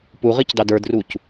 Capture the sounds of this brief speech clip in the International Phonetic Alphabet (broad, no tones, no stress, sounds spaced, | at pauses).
p u ʁ i c d ɑ d ə˞ d r u c